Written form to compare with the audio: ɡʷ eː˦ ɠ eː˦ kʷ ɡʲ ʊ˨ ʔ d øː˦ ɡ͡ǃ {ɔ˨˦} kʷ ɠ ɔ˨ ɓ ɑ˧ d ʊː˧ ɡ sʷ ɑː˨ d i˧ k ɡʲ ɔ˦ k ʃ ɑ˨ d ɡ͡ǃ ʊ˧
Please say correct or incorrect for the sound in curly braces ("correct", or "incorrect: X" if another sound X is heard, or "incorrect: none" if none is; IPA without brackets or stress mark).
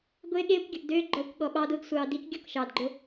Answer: correct